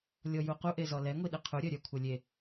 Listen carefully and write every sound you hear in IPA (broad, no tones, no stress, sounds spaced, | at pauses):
lʲ ɔ j u q u ʔ e z ɔ l ɛ ŋʷ i ɗ e qʰ u ɾʲ œ ɾʲ œ kʷʰ œ lʲ e